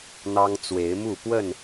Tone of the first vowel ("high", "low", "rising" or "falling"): high